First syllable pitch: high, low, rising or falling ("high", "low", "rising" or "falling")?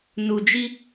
low